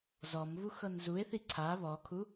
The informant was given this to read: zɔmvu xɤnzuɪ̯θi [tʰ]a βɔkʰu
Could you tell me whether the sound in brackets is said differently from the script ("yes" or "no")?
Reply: yes